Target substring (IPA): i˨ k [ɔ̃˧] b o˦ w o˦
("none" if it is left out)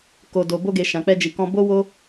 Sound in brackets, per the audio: ɔ̃˧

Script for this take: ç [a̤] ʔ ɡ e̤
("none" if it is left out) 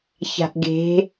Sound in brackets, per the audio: a̤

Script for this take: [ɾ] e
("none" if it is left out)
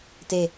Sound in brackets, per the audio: t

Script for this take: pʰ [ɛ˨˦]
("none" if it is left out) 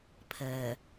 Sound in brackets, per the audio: ɛ˨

